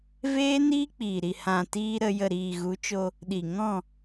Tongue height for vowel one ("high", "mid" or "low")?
mid